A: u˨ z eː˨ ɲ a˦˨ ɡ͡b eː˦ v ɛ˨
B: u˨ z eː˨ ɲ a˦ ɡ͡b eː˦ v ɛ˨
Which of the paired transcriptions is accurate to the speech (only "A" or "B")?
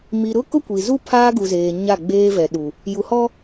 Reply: A